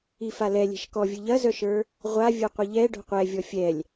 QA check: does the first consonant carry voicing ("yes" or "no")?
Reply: no